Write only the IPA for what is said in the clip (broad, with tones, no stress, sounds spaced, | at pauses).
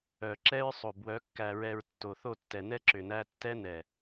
œ˨ ǁ ɛ˦ ɹ sˤ o˨ b w œ˨˦ kː æ˨ ɹ ɛ˨ ɹ tː o˨ θ o˦˨ tː ɛ˨ n ɛ˦ ǁ ʏ˨ n æ˦ tː ɛ˦ n ɛ˨